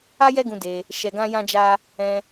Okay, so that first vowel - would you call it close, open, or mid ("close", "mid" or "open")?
open